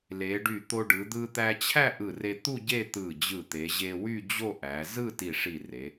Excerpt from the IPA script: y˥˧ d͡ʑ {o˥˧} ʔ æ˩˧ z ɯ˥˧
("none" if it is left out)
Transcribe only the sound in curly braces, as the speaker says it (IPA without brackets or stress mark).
o˥˧